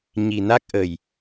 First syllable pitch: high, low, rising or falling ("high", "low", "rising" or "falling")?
low